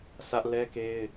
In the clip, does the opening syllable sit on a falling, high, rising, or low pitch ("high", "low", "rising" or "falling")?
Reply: high